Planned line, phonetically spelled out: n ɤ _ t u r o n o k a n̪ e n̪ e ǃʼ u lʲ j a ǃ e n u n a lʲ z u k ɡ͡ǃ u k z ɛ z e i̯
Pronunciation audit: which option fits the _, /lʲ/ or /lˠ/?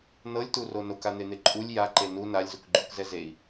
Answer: lʲ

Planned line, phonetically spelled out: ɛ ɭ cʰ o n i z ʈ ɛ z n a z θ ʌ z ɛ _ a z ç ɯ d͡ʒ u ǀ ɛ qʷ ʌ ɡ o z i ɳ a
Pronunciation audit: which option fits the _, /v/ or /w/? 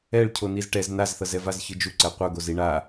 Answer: v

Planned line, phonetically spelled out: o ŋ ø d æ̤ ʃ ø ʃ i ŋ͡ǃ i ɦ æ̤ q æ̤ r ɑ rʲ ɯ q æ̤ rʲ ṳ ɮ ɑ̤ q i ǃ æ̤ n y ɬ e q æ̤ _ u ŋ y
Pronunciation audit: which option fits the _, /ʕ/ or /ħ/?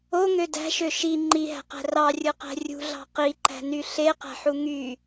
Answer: ħ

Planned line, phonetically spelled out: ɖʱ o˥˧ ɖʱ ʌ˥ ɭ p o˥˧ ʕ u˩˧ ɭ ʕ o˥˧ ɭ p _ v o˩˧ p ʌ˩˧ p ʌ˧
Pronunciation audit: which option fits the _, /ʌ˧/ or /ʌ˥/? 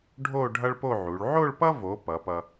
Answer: ʌ˥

